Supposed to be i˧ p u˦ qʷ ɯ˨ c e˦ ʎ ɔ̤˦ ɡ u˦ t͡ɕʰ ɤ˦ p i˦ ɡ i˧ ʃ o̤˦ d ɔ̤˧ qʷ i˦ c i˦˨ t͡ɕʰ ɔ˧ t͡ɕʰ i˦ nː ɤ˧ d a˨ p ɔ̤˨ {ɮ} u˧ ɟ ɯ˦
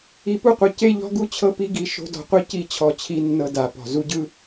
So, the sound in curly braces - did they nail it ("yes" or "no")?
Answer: no